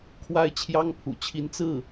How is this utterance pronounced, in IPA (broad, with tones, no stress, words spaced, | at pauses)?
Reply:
kʰwa˥ɪ̯t͡ɕʰjɑ˥ŋpʰṵ˨˩t͡ɕʰi˧˥n t͡sɹ̩˥˩